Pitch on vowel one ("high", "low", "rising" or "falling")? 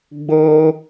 high